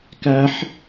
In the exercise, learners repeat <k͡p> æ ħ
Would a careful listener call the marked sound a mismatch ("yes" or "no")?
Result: yes